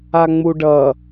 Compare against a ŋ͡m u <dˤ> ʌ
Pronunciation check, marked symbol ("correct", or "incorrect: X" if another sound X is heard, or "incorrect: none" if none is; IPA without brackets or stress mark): incorrect: ɖ